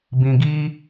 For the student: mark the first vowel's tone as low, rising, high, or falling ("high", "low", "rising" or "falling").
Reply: low